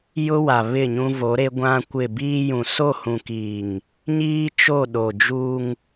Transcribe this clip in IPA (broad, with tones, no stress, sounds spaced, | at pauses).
j ʊ˦ w a˨ β ɪ˦˨ ɲ ũ˦ v o˨˦ ɾ e˦ ɡʷ ã˦ kʷ ɪ˦˨ b iː˦ j ũ˨ s o˦˨ h ũ˨ k iː˨ ŋ | ɲ iː˦ t͡ʃ o˦˨ ɗ o˨ d͡ʒ u˦ ŋ